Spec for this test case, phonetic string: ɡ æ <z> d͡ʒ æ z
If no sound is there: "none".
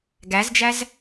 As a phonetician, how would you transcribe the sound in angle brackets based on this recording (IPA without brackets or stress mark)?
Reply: z